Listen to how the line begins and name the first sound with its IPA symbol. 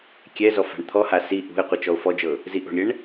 kʲ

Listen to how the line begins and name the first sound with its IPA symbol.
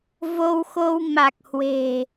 v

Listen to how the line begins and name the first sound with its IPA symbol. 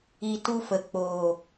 i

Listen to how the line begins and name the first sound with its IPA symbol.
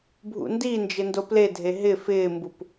bʱ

